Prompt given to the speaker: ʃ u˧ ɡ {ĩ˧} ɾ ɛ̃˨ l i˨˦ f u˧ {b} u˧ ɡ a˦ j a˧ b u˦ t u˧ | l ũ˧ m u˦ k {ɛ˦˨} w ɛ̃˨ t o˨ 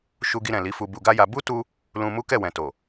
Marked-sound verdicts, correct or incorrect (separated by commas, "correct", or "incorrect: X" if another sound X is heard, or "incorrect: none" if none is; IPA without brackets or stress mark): incorrect: i˧, correct, correct